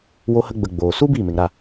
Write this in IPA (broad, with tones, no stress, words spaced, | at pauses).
wo˧hə˧ɡ͡bə˨ ɡ͡boː˨ su˦ biː˦˨me˨ŋɾa˦˨